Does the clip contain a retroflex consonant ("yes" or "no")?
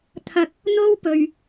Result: no